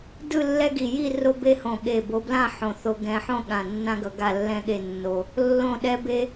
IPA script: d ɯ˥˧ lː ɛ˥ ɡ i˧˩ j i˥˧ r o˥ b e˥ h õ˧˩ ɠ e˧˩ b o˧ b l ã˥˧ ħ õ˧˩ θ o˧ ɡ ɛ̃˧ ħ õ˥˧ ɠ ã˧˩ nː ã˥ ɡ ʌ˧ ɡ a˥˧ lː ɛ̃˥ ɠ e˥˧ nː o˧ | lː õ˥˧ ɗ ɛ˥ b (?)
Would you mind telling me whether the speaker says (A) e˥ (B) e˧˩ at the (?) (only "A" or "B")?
A